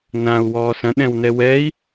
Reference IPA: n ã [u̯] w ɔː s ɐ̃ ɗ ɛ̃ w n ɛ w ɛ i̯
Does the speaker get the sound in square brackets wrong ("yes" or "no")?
no